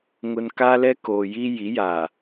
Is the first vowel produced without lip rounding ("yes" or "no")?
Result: no